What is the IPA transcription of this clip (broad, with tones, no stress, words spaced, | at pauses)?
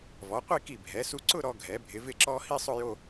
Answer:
vɔ˩˧qʷi˥˧ki˧˩ bʱɛ˩˧su˧ǀʊ˥˧ ɾɔ˧ɡʱɛ˩˧bʱɪ˩˧ vɪ˧˩ǁɔ˧ hi˥˧sˤʊ˥˧jo˥˧